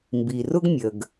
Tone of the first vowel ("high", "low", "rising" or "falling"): low